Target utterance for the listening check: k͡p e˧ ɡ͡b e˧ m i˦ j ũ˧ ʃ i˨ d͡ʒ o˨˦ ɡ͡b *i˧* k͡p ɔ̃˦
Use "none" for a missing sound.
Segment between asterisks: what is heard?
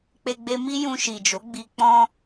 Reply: i˧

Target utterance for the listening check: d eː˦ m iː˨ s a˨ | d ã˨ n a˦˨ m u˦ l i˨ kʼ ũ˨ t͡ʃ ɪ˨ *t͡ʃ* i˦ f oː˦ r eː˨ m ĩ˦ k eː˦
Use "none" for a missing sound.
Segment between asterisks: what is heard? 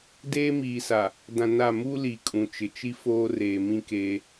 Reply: t͡ʃ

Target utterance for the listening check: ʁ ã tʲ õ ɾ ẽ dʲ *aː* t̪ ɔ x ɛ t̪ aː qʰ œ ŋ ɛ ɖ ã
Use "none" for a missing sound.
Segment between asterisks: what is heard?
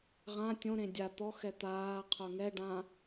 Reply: a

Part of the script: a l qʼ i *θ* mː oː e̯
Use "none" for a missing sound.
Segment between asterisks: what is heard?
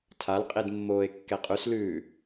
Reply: d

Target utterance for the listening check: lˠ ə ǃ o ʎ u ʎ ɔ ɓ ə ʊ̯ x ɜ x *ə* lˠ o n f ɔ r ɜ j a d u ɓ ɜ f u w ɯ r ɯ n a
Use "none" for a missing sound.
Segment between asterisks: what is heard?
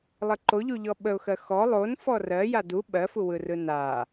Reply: ɔ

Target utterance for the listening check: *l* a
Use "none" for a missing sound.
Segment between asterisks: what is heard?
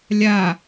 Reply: lʲ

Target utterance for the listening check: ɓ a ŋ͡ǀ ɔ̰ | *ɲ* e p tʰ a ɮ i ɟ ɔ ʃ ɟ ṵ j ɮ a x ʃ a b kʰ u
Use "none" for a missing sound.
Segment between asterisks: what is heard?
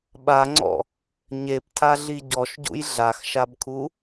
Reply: ɲ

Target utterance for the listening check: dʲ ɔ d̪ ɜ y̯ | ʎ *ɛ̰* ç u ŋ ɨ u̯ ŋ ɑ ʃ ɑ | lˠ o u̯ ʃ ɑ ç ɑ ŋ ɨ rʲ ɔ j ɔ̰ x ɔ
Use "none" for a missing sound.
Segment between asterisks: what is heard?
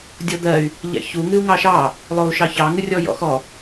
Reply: ɛ̰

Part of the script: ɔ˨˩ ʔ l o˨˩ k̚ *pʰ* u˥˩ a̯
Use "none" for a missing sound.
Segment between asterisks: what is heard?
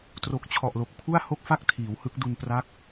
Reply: pʰ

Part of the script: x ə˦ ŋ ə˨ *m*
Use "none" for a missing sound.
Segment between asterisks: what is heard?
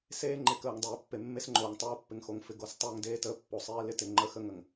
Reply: ŋ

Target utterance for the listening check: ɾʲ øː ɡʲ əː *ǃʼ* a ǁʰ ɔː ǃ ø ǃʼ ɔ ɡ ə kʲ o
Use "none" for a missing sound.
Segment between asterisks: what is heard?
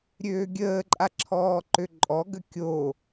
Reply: ǃʼ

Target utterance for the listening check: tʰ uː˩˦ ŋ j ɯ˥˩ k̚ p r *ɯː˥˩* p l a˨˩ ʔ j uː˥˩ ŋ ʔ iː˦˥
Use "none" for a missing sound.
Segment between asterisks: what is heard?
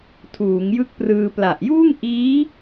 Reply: ɯː˧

